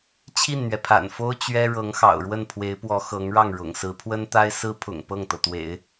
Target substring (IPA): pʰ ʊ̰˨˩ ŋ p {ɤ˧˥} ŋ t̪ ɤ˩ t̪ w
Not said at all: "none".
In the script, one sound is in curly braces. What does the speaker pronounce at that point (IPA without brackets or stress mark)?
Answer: ɤ˥˩